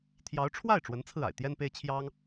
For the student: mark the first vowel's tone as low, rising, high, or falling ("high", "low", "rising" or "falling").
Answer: rising